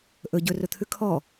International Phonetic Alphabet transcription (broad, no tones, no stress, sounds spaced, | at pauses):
ʔ ɵ ɟ ɵ r ɵ t̪ʰ ʉ kʰ ɔ